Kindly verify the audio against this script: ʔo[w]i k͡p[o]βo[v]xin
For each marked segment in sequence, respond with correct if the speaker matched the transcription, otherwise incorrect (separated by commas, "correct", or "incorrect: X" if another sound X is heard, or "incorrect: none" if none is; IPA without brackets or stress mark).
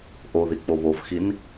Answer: incorrect: ð, correct, correct